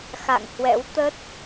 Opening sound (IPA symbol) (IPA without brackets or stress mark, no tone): x